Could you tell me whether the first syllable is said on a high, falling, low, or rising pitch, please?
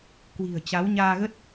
low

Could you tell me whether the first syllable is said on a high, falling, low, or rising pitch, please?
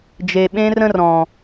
low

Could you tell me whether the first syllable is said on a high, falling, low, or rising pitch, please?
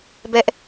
high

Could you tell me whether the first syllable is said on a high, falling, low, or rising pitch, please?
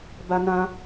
high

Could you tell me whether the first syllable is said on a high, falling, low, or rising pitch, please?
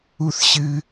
high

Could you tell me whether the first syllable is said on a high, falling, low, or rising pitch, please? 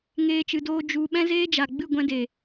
high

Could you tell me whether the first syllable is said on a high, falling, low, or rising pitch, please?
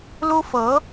high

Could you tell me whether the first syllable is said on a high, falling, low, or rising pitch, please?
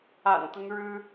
low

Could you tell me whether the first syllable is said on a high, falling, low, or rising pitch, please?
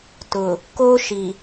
low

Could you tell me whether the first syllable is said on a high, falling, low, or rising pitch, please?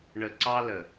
low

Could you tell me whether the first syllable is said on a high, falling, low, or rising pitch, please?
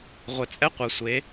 low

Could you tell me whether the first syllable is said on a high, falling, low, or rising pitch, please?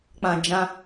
low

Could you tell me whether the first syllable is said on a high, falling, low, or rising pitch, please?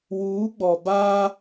rising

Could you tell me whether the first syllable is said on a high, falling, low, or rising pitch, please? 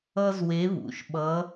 high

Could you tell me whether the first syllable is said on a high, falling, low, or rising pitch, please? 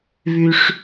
high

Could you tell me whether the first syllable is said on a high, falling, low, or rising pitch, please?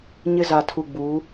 high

